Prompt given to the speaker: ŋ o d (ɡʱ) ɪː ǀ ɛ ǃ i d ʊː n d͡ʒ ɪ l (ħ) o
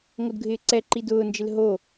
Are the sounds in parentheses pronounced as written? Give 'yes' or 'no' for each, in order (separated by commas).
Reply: yes, no